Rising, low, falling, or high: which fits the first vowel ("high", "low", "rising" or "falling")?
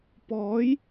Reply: rising